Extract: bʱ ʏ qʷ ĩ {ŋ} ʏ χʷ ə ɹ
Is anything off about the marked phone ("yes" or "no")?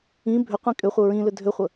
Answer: yes